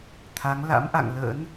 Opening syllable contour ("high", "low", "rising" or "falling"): rising